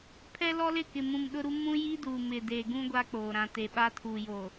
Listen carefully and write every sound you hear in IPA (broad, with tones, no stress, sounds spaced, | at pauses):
pʰ ɛ˦ l ɔ˦ l ɪ˦˨ k ɪ˨ m ũ˨ m ɗ ʊ˦ ɾ u˦ m ũ˦ j i˦ d uː˨ m ɪ˨ d e˨ ɡ ũ˦ ɡʷ a˦ k͡p oː˨ ɾ ã˨ t e˨ ɓ a˦ tʰ uː˨ j oː˨